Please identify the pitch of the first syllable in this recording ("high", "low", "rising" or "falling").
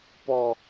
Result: low